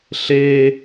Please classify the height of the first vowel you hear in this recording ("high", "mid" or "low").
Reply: mid